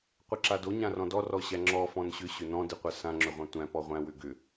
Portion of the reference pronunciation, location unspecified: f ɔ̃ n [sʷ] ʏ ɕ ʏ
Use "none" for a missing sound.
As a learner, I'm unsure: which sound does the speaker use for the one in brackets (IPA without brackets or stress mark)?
ɕ